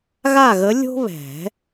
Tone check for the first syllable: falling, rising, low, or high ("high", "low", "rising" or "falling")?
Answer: falling